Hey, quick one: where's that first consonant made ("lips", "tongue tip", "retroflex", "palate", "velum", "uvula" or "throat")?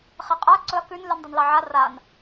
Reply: uvula